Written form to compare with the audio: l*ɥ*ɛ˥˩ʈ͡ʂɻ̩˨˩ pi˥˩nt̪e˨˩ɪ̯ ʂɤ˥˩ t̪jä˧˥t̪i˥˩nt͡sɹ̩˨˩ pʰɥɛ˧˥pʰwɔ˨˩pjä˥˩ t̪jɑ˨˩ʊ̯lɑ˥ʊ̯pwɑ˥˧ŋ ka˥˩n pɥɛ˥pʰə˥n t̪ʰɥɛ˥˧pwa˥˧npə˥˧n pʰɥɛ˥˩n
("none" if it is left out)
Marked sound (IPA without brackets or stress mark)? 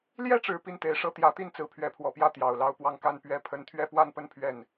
j